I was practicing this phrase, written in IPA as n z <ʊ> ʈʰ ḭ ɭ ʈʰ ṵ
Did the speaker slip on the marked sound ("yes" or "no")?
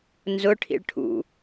no